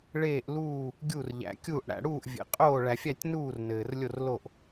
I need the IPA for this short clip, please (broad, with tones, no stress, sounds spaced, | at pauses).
ɭ eː˥˧ ʔ l uː˥˧ | ɡʲ u˥˧ r ʎ æ̰˧ kʲ uː˥˧ ʔ ɽ æ̰˧ ɽ uː˥˧ ʔ vʲ ḛ˧ qʼ oː˥˧ ɭ æ˧ fʲ æ˥˧ tʲ n uː˥˧ r n ɘː˧ r lʲ o˥˧ r l o˥˧ ʔ